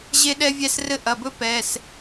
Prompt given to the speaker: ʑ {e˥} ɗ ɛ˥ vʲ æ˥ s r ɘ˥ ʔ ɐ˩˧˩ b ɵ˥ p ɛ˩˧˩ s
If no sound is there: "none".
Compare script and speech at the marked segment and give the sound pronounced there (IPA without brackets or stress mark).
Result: e˥